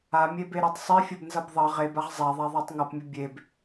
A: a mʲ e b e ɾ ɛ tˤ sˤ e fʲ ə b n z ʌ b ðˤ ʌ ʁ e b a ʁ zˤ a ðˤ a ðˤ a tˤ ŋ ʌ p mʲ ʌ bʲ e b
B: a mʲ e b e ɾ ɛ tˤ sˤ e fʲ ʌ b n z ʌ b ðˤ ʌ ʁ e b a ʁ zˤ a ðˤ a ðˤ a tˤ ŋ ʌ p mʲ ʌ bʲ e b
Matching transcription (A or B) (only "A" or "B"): B